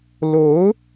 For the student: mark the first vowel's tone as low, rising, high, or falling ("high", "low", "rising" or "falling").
rising